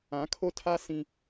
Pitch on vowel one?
rising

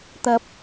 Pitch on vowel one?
high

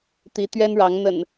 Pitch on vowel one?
rising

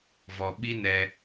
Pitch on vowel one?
low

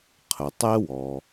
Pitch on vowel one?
low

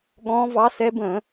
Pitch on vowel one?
rising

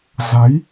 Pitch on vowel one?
rising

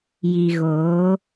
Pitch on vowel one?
low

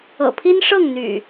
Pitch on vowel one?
low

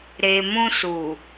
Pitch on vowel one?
low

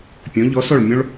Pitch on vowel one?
rising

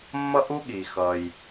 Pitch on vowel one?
high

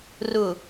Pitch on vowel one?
low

